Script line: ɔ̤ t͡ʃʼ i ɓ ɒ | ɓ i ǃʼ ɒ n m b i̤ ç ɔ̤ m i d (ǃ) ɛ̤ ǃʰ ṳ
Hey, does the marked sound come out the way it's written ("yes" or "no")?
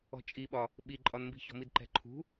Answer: yes